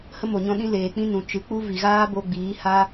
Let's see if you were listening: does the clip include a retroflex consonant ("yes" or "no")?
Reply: no